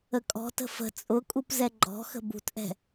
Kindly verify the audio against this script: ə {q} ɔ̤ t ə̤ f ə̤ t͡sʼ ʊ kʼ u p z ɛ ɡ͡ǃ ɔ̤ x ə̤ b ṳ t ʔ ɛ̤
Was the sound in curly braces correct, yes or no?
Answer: no